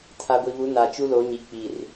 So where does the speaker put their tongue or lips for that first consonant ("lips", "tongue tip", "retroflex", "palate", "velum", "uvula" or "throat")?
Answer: tongue tip